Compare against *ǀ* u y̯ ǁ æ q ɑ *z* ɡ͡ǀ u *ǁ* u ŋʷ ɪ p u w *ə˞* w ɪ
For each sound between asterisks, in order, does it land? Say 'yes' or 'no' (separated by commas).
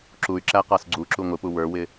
no, no, yes, yes